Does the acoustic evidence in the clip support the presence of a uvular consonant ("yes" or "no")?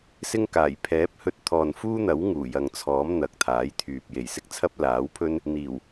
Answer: no